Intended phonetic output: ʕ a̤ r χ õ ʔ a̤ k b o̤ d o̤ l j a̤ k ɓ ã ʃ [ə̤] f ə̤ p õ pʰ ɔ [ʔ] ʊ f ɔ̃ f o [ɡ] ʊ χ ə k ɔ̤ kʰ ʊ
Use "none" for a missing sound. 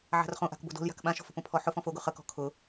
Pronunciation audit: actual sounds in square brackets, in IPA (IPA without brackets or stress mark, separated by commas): ɔ̤, ħ, ɡ